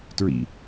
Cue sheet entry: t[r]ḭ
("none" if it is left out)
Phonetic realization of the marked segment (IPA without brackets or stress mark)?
ɹ